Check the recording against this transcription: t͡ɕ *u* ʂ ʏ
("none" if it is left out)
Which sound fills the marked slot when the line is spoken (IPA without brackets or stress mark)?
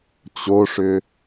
o